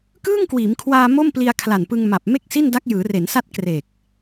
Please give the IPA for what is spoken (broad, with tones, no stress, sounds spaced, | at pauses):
k ɯː˥˩ ŋ k w iː˩˦ m kʰ w aː˧ m o˥˩ m p l i˧ a̯ kʰ l a˨˩ n p ɯ˧ ŋ m a˨˩ p̚ m e˥˩ k̚ s i˥˩ n d a˦˥ k̚ j ɯː˩˦ r e˩˦ n s a˦˥ t̚ k r e˨˩ k̚